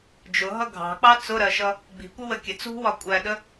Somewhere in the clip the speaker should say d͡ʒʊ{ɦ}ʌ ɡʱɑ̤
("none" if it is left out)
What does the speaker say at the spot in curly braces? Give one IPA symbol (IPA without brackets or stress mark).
ɦ